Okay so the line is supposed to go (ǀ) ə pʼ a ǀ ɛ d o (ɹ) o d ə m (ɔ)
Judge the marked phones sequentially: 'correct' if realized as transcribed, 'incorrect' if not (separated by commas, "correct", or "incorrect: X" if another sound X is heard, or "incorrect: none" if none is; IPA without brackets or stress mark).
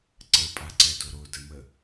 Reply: correct, incorrect: ɾ, incorrect: ə